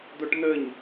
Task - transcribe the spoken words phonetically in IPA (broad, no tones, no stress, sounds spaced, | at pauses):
d̪ o ʈ n̪ ə ɲ